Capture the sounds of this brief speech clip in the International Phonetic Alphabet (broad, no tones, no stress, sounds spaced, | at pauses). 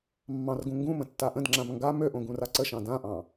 mː ɑ̃ r ɡ ũ ŋ ɡ ũ m ə̃ tː a ʔ ə̃ d ŋ͡ǁ ã m ŋ ɡ a m ø ʔ õ ɡ ũ r a ǀ ə ʃ ɑ̃ d ã ʔ ɑ̃